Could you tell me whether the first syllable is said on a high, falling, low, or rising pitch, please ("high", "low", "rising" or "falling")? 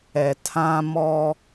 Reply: low